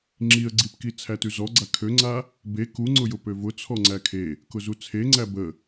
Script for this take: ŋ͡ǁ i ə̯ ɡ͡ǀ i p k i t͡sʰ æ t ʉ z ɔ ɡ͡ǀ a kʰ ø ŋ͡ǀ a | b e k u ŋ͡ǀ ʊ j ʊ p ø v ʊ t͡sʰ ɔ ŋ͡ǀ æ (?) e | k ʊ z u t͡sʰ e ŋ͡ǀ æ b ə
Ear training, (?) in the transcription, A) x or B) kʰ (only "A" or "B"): B